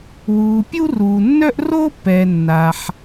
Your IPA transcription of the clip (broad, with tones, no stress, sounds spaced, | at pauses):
w uː˩ pʲ u˥ r uː˩ nː œ˥ ʔ r oː˥ pː ɛː˩ nː aː˩ ħ